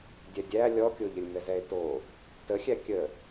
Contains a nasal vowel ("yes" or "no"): no